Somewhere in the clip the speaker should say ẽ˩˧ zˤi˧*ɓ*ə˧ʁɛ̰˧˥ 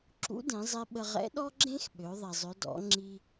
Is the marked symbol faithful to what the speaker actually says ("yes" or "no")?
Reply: yes